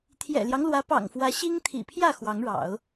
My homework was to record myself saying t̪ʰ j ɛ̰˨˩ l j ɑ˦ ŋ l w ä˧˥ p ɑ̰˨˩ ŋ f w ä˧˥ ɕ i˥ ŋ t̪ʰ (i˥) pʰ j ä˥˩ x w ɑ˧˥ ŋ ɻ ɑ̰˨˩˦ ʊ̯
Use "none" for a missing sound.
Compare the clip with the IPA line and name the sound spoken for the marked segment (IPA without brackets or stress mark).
ḭ˨˩